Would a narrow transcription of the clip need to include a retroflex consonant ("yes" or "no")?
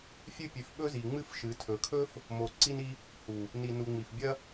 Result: no